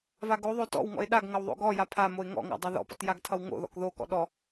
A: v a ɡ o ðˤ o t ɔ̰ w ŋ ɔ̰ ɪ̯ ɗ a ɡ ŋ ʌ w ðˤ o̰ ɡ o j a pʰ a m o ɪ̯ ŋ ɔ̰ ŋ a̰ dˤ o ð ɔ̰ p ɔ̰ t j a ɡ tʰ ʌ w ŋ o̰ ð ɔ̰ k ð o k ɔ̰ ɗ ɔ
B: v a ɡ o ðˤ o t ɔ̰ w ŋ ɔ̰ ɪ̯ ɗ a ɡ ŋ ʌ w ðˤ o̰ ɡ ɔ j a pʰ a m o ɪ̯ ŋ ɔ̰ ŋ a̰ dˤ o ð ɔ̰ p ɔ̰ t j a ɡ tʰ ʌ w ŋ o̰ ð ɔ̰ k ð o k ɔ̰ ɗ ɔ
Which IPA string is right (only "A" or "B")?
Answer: B